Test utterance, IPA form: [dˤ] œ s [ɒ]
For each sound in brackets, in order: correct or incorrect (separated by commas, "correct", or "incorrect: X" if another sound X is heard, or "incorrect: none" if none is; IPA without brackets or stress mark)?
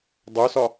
correct, correct